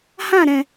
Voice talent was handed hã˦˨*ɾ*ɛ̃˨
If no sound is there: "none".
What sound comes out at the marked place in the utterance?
ɾ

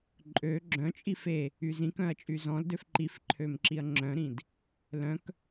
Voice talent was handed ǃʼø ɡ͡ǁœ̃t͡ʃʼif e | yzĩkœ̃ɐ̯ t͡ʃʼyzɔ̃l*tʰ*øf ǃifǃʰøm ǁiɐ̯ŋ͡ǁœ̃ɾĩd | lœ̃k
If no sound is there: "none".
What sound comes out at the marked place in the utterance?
d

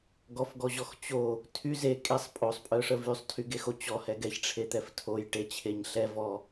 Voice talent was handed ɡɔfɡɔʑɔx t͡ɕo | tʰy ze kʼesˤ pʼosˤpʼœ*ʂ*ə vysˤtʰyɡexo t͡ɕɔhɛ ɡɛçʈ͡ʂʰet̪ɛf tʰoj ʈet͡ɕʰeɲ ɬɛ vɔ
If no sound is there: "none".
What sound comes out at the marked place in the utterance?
ʂ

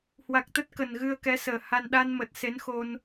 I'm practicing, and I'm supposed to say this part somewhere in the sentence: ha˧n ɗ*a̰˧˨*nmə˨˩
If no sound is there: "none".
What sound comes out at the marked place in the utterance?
a˧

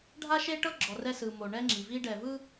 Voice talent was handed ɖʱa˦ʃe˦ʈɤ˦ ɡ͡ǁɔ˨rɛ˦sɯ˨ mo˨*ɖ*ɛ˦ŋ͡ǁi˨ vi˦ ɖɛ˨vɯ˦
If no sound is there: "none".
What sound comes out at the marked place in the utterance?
ɳ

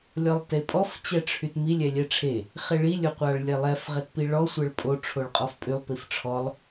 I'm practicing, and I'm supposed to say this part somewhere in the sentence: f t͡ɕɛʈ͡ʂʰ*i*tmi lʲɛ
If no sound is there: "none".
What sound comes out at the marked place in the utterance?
y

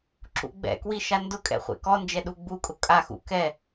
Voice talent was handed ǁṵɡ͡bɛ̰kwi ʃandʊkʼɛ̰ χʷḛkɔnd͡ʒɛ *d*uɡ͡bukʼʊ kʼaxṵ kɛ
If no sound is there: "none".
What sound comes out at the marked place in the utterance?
ɗ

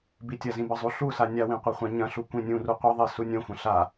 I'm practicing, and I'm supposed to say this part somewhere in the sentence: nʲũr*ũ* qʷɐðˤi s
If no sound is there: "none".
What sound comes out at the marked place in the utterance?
u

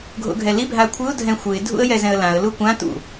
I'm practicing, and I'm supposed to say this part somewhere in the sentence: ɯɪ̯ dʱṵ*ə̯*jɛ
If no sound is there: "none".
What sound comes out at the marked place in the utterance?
ə̯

